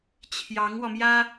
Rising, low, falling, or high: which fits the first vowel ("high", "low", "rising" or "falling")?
rising